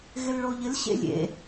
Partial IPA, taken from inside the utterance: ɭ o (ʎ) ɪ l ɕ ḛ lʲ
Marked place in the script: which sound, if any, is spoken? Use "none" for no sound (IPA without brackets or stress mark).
ʎ